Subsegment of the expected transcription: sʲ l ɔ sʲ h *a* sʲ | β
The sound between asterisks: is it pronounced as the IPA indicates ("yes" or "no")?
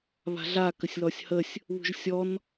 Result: no